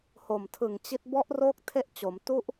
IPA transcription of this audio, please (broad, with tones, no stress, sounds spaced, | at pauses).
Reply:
h o˨˩ m tʰ ɯ˨˩ ŋ t͡ɕ i˦˥ t̚ b ɔ˦˥ ʔ r oː˦˥ k̚ tʰ e˥˩ ʔ t͡ɕ o˩˦ m t u˦˥ ʔ